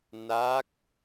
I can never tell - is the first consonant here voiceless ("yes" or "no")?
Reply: no